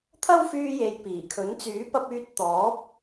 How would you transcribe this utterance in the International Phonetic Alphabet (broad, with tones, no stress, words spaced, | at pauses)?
t̪ʰɐ˥wfyː˧je˨j piː˨˩kʰɵ˨˥n t͡syː˨˥pɐ˧p̚yː˧t̚ t̪ɔː˨˥p̚